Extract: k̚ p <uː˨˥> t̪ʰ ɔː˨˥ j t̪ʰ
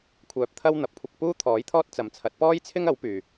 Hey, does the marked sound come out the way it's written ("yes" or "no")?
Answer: no